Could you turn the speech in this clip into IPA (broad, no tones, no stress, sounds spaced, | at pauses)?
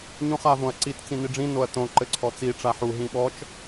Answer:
ɲ ũ χ a v õ ɐ̯ ǀ i t t͡s ĩ n i ɖ͡ʐ ĩ n o ɐ̯ t õ ǃ ɘ ǀʰ ɔ t͡s i ʈ͡ʂ a ħ u ɦ ĩ ɓ ɔ t͡ʃ